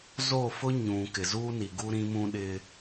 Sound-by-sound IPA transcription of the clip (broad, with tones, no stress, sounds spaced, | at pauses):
z o˦˨ f ʊ˦ ɲ ũ˨ k ɪ˨ z u˦ n i˨ ɡ u˦ ɾ ĩ˦ m ũ˦ ɗ ɪ˦